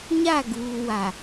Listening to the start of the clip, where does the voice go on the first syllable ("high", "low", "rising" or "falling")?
falling